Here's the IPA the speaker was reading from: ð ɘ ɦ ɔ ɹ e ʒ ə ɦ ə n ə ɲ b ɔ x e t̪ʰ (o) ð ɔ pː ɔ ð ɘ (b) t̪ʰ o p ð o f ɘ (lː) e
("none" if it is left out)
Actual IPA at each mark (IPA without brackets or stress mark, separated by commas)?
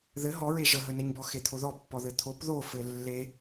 o, none, lː